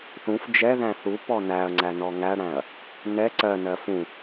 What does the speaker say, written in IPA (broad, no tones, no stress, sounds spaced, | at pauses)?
θ ũ f d͡ʒ ɛ ð æ̃ θ u p ɔ n æ ɐ̯ ŋ͡ǀ æ n ɔ ŋ æ ɽ æ̃ ɐ̯ | n ɛ ǀ ɜ n ɜ f ũ